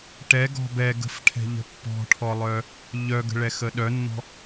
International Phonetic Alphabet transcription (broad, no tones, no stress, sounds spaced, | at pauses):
ʈ ɛ ɡ ɔ̤ b ɛ ɡ ə̤ f ʈʰ ɛ̤ ʎ ə̤ pː ɔ̤ ʈʰ ɔ lˠ œ | ʎ œ ɡ ə̤ ɭ ɛ x ə ɗ œ nː ɔ̤